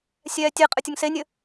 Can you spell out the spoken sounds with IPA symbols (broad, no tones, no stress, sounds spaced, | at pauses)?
sʲ ɛː tʲ e qʼ ɘ tʲ ɐ ŋ s e nʲ ɘ